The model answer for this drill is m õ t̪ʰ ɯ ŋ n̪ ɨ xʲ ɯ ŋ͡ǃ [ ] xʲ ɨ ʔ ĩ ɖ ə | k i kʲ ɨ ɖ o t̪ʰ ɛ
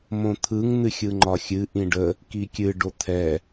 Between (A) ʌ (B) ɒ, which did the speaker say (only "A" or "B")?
B